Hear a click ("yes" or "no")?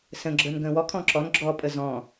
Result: yes